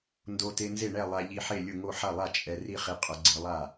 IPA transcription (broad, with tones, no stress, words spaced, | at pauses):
ndo˧te˧nze˥˩ɳɛ˥˩ lˠa˧ʎi˧ħe˥˩lʲʊ˥˩ ŋo˥˩ħa˥˩lˠa˥˩ t͡ʃʼɛ˧ri˥˩χi˧ qʼʊ˧ɡ͡ǀe˧lˠa˥˩